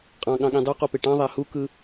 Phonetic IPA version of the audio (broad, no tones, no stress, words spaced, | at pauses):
qʼɑ̃ɠɑ̃ɠĩ dˤuqupe ʈɑ̃ðˤæ hukɯ